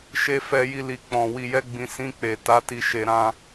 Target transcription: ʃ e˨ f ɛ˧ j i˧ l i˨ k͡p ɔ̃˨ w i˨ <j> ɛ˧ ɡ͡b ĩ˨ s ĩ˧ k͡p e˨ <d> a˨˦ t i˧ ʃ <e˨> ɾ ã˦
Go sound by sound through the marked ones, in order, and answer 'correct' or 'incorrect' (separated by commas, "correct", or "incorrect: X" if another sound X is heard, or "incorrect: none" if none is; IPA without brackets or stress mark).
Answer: correct, incorrect: t, incorrect: e˧